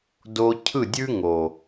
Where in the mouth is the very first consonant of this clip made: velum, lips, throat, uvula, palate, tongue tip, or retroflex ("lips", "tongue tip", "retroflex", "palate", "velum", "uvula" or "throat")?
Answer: tongue tip